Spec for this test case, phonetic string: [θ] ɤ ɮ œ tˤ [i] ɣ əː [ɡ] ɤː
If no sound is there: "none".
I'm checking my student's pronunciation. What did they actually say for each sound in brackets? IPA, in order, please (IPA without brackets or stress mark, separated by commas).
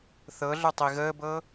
θ, i, b